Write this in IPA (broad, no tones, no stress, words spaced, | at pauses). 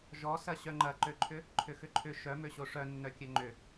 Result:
ʒɔsɐ ɕœŋ͡ǃɐǃøǃʰʏ | ǃʰʏxʏǃʰʏ ʃœmøɕo ʂœnːœ kʲœŋ͡ǃʏ